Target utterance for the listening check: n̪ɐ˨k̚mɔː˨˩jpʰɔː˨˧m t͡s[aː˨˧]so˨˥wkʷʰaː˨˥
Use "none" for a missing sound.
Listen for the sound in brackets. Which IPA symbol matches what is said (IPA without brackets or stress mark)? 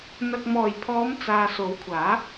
aː˨